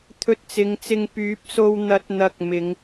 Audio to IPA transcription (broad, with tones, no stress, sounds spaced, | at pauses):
t̪ʰ ɵ˧ t̚ t͡s ɪ˨˧ ŋ t͡s ɪ˧ ŋ p yː˨˥ p̚ s o˧ w n̪ ɐ˨˥ t̚ n̪ ɐ˨ k̚ m ɪ˨˥ ŋ